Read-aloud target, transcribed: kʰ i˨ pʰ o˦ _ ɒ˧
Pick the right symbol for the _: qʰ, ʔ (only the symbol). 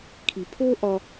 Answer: ʔ